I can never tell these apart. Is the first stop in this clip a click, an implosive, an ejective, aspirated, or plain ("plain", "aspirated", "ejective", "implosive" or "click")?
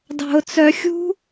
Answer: plain